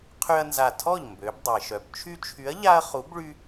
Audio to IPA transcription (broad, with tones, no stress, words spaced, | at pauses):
qʰy˦ɐ̯nza˧˩ tʰɔ˥˩ʎ mbø˩˧b dˤe˩ ʃœ˩b t͡ʃʰy˦t͡ʃʰy˨˥ɐ̯ʎa˦ɐ̯ χu˨˥bɭy˦